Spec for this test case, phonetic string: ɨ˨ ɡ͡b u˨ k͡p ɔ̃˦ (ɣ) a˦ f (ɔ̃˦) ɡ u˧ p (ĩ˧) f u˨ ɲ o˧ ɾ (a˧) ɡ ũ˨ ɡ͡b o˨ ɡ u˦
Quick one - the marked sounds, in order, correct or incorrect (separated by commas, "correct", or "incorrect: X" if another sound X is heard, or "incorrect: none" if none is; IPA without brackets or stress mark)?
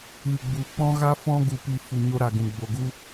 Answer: correct, correct, incorrect: i˧, incorrect: a˨